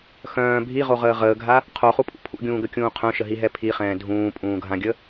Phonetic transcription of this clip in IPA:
xœ̃ː bʱiʁoʁəː ʁəːɡʱa | qʰoχupʼṵ pʰṵɡʲũːɡəkʲũː qʰœ̃ʃəɦiɦɛ pʰiχɛ̃ː dʱũːpʼũːɡʱãɡʲə

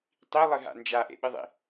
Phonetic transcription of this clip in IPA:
tˤi lˠɨɦa̰nd͡ʒa ʔḛɓɨðˤḭ

